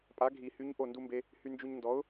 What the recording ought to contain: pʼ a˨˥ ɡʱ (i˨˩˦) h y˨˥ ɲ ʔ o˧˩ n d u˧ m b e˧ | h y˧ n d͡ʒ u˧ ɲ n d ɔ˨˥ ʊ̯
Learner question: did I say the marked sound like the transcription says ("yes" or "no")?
yes